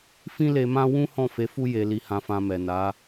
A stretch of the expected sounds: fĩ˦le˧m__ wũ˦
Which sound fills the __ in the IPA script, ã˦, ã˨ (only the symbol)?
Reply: ã˦